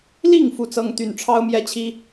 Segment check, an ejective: absent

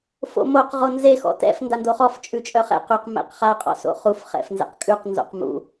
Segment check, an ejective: present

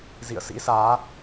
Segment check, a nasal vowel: absent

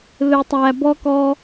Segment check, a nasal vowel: absent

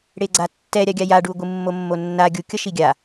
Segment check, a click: present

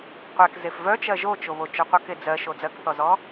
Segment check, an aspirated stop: absent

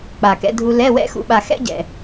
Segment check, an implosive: present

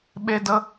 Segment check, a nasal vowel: absent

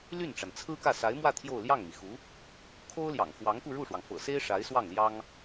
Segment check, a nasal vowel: absent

